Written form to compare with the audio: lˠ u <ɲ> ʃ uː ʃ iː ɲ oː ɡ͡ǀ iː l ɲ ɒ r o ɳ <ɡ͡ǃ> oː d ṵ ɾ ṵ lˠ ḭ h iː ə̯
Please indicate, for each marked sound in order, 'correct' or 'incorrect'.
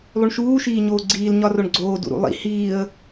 incorrect: ɳ, incorrect: ɡ͡ǀ

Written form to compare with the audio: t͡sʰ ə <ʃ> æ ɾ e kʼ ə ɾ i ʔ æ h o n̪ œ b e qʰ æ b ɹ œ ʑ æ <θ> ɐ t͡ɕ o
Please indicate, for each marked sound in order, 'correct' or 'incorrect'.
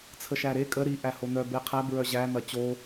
correct, incorrect: n̪

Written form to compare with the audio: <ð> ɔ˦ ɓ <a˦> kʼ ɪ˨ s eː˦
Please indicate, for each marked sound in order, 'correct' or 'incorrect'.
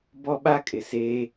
incorrect: b, correct

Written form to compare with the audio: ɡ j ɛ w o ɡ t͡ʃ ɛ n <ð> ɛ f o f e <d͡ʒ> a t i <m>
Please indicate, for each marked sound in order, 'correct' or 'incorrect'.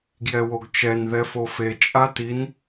correct, incorrect: t͡ʃʼ, incorrect: n

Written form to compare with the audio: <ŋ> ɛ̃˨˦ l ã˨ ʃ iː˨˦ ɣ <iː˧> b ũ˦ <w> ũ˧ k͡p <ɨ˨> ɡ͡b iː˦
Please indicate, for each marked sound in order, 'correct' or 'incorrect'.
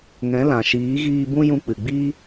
correct, correct, incorrect: j, correct

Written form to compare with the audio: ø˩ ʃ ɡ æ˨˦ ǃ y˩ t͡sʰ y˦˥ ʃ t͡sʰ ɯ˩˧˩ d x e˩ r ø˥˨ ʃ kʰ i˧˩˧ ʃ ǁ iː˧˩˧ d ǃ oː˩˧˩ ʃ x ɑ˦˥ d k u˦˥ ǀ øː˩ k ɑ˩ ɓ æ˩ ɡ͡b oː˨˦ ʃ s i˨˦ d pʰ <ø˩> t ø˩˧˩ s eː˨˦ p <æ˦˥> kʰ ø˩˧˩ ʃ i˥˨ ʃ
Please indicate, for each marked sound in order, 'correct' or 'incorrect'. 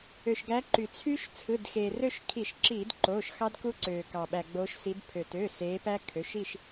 correct, correct

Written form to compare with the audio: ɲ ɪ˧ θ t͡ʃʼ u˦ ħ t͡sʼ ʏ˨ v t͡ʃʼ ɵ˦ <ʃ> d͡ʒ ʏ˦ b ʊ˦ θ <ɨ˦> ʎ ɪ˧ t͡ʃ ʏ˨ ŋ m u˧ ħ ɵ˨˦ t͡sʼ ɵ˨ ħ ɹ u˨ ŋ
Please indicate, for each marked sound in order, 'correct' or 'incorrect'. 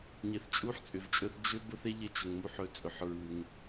incorrect: θ, incorrect: e˦

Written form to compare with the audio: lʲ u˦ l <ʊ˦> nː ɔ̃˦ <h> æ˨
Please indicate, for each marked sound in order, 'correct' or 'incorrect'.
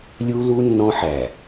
incorrect: u˦, incorrect: ħ

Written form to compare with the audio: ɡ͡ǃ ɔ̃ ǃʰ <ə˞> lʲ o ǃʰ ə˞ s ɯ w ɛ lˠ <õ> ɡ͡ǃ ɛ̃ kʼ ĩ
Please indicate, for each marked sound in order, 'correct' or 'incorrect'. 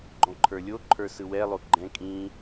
correct, incorrect: o

